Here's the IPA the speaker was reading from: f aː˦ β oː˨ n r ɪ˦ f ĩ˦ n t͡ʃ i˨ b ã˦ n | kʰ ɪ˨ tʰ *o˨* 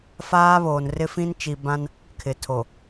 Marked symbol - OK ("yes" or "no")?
yes